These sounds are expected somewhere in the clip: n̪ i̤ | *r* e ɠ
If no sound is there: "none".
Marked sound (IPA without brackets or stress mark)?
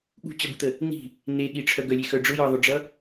n̪